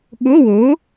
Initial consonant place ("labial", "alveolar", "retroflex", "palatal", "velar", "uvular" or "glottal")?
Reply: velar